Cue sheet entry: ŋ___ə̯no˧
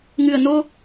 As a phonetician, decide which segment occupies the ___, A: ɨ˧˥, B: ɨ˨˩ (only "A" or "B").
B